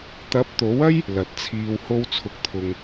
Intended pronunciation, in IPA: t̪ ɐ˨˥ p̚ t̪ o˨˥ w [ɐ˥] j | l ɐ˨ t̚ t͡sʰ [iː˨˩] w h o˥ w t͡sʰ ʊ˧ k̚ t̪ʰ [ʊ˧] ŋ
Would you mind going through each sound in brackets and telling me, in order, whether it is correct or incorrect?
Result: correct, incorrect: iː˧, correct

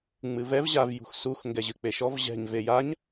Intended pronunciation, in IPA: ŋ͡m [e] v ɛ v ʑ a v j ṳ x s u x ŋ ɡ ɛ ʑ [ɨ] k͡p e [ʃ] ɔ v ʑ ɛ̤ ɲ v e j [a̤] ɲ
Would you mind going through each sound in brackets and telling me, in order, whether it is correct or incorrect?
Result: incorrect: ɨ, correct, correct, incorrect: a

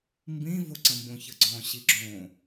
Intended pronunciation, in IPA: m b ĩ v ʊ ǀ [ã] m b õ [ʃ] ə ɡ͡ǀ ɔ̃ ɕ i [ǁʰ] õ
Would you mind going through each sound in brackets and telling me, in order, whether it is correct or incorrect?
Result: incorrect: ə̃, incorrect: ç, incorrect: ɡ͡ǁ

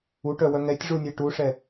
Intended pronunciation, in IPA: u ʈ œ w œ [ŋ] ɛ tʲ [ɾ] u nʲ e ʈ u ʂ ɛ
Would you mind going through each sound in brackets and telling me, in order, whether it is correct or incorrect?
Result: correct, incorrect: ʐ

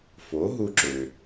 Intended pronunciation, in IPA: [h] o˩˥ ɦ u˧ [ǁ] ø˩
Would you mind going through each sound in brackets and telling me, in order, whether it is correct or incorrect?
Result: incorrect: f, correct

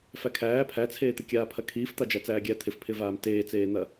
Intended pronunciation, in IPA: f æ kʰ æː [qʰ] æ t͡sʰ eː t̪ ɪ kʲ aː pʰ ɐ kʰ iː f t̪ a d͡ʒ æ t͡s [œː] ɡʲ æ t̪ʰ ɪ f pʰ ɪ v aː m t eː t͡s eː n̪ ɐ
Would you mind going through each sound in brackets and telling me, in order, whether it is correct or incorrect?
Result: incorrect: pʰ, incorrect: æː

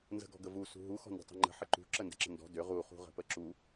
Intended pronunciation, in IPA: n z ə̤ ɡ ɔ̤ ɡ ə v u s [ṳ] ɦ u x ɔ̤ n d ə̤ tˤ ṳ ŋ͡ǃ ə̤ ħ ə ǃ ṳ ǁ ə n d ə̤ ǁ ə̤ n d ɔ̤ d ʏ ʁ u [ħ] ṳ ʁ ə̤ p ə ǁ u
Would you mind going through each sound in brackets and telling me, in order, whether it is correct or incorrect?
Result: correct, incorrect: χ

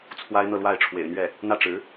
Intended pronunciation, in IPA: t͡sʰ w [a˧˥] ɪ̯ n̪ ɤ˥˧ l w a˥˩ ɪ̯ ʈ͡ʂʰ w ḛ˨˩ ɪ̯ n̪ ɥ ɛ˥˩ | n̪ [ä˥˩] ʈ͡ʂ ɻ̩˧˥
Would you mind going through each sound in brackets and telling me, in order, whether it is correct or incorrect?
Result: incorrect: a˥, correct

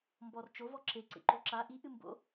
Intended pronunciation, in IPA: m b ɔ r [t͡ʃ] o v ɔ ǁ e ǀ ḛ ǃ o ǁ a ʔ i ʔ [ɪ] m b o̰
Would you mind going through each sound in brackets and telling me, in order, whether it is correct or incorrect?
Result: correct, incorrect: ɨ

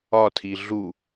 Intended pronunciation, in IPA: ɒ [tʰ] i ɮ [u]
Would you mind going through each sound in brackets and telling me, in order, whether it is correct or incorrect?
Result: correct, correct

